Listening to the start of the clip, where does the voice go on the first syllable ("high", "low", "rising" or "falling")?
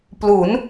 rising